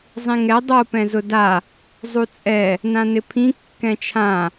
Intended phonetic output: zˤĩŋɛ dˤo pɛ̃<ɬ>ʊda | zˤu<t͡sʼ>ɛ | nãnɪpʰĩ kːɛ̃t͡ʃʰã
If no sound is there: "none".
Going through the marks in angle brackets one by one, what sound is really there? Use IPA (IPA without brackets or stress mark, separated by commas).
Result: z, t͡sʼ